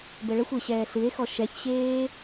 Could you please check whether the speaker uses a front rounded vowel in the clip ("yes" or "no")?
no